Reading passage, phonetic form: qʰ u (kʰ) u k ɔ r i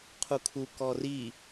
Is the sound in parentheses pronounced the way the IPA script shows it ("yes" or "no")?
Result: yes